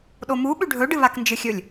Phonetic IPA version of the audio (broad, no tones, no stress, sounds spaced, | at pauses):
ɗ o m u ɓ ʉ ɖʱ ɵ ɖ ɨ β a k n d͡ʒ ɨ xʲ ɵ lʲ